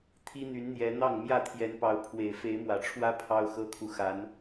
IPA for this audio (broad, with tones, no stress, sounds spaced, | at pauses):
t̪ʰ i˦ n̪ y˨˦ n n̪ j ɛ˨˦ n̪ ɑ˥˨ ŋ m j ä˥˨ t̪ʰ j ɛ˨˦ n p ɑ˨˦ ʊ̯ pʰ w e˨˩ ɪ̯ f e˨˦ ɪ̯ m w ä˨˩ ʈ͡ʂʰ w ä˦ pʰ ɑ˦ ʊ̯ x ɤ˦ kʰ u˨ x a˨˦ n